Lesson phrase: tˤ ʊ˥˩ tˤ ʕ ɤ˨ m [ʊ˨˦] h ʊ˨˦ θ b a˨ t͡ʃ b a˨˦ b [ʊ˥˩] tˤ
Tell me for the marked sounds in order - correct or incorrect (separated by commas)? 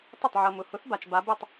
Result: incorrect, correct